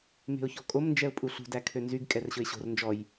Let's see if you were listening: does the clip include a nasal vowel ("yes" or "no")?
no